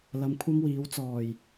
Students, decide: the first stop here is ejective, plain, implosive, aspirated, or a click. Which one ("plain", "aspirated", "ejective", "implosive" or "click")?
aspirated